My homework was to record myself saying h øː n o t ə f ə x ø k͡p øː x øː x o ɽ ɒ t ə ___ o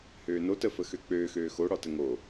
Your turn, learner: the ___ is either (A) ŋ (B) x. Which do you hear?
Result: A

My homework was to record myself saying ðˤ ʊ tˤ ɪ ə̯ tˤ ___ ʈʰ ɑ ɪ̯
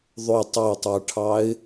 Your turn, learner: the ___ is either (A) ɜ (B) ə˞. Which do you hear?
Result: B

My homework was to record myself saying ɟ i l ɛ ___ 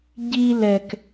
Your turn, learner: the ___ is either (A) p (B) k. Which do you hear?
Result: B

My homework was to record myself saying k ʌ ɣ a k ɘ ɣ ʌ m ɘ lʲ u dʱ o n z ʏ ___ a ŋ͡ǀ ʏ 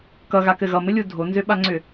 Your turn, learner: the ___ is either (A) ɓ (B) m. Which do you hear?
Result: A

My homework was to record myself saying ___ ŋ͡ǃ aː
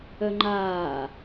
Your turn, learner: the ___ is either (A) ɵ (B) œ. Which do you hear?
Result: B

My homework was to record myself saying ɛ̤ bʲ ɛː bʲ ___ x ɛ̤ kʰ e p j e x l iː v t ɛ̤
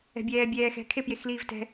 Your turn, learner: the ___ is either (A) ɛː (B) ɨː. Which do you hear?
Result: A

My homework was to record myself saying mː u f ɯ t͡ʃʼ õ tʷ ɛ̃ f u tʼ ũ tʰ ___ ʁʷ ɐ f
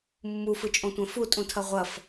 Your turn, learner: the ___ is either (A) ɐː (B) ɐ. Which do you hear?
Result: B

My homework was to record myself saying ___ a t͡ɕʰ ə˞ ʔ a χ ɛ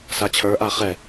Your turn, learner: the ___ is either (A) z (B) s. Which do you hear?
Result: B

